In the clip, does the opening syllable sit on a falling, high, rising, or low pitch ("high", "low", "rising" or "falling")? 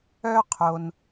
high